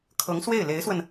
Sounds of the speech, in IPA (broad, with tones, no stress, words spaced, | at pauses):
kʰɤ˧˥ŋswe˥˩ɪ̯le˧˥ɪ̯swə˧n